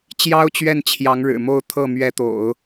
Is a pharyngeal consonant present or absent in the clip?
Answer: absent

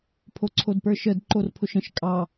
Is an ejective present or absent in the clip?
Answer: present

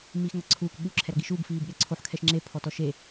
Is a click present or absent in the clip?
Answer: present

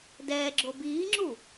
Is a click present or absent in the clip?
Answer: present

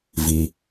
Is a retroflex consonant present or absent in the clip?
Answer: absent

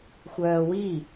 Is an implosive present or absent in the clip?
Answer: absent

